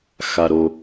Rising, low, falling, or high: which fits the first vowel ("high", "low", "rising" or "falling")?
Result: low